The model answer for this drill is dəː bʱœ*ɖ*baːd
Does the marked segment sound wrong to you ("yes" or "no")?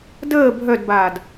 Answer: yes